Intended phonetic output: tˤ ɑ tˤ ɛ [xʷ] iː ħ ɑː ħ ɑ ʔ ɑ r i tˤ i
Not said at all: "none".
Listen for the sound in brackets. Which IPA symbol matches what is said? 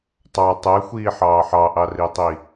xʷ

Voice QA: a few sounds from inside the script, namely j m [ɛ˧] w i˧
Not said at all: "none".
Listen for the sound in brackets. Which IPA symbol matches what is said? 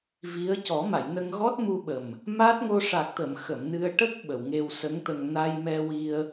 ɛ˧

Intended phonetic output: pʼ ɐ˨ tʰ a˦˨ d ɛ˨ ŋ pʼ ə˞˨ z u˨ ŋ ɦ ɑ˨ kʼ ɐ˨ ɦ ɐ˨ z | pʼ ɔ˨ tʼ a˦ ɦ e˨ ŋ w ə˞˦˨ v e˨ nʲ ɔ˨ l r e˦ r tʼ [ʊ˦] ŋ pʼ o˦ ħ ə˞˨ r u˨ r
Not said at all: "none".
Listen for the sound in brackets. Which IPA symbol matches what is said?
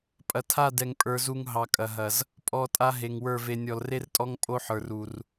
ɔ˦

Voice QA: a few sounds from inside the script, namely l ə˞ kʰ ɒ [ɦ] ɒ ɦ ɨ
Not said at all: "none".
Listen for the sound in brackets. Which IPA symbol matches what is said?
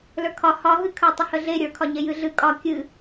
h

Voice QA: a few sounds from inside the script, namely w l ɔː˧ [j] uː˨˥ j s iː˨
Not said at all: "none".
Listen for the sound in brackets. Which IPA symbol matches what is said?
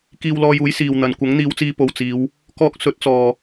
j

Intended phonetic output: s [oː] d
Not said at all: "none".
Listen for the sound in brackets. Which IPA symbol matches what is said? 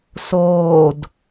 oː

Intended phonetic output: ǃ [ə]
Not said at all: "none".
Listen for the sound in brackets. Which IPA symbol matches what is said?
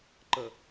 ə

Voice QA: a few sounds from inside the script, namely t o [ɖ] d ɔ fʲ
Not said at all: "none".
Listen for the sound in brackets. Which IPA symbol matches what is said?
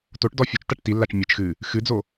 ʈ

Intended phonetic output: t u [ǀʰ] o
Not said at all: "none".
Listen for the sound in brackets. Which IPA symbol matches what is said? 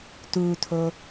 tʰ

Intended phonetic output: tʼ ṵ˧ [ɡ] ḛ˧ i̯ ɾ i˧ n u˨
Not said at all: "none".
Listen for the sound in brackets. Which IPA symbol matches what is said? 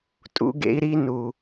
ɡ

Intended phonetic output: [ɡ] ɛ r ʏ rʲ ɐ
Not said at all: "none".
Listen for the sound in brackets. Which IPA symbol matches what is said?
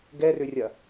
ɡ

